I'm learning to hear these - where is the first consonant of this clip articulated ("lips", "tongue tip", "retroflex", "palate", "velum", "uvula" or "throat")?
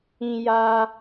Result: palate